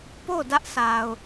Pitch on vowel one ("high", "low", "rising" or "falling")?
falling